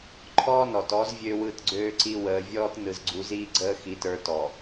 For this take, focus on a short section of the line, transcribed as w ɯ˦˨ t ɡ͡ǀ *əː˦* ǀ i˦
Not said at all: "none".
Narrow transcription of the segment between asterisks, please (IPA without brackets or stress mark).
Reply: øː˦